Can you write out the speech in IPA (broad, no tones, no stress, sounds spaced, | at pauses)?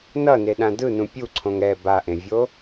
n ʌ n e ɗ ã d ɯ n ũ pʲ u ǀʰ õ ŋ ɛ b a ʔ ẽ vʲ o